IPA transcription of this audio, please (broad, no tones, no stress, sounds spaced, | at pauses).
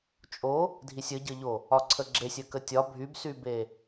t͡ʃʼ o | dʱ i sʲ ə ɟ ə ʎ o | ɒ ǀʰ ə ɡ͡ǁ e sʲ ə k ə tʲ ɒ bʱ y b s y b e